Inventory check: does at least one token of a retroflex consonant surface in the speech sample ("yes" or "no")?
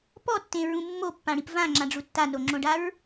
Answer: yes